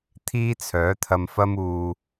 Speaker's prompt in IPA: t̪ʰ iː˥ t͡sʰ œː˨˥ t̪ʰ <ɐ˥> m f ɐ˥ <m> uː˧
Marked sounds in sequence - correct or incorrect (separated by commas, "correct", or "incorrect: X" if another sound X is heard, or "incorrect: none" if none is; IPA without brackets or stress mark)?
incorrect: ɐ˧, correct